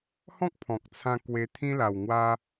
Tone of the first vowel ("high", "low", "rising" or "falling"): high